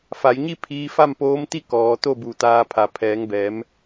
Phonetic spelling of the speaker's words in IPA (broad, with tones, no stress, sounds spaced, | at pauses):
f a˩˧ j ɲ i˥˨ pʰ iː˧ f a˥˨ m p oː˧˥ m t̪ i˥˨ k ɔː˩˧ t̪ o˥˨ b u˧˩ t̪ aː˧ pʰ a˩˧ pʰ ɛː˩˧ ŋ b ɛː˩˧ m